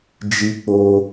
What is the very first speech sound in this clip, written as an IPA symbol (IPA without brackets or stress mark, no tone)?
d͡ʒ